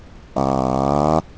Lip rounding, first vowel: unrounded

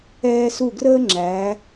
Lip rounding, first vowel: unrounded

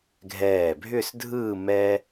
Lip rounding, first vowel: unrounded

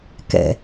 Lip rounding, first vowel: unrounded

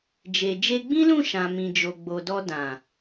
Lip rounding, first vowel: unrounded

